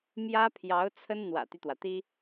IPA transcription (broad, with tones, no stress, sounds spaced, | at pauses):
m j ä˥ pʰ j ɑ˧˥ ʊ̯ t͡sʰ ə˥ n n̪ w ä̰˨˩ t̪ y˦ t̪ w ä˩ t̪ i˥